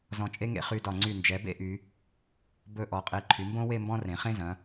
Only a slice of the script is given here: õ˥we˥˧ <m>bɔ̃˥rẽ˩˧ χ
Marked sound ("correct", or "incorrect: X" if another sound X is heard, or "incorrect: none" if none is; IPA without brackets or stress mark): correct